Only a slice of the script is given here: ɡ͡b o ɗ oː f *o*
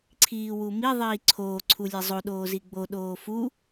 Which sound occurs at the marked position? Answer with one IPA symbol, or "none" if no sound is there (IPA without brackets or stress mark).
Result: u